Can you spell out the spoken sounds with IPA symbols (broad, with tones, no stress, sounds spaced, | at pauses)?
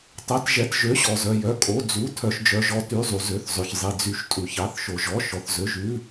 tˤ ɛ˩˧˩ t ʒ ɛ˩˧˩ t ʒ ø˩˧˩ ɕ ɔ˩ z œ˩ j œ˩˧˩ kʼ o˩˧˩ d͡z u˩˧˩ tʰ œ˩ ʃ d͡ʒ œ˩ ʒ ɔ˩ t y˩˧˩ zˤ u˩ z ø˩˧˩ θ zˤ ø˩ ç zˤ i˩ d͡z y˩˧˩ ʃ tʼ u˩ ç ɑ˩˧˩ θ ʃ o˩ ʒ ɔ˩˧˩ ʃ ɔ˩ θ z ø˩˧˩ ʒ ʉ˩˧˩